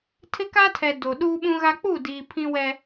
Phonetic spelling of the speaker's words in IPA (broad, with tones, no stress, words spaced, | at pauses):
tʰɪ˦ka˦tʰɛ˨ do˨ ɗuː˦ɓũ˦ɣa˦ k͡pu˦˨diː˨ pʰĩ˦wɛ˦